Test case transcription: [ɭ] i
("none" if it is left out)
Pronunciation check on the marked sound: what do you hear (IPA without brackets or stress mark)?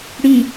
ɽ